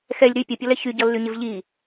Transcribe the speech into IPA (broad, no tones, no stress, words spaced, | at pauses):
xɛlʲ ɾy pʲəpʲʌlɛ çyɟʌlːyɲɪv ʎi